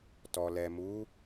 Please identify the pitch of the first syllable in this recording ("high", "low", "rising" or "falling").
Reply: low